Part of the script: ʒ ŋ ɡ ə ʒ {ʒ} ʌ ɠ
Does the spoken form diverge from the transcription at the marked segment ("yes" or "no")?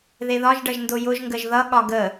yes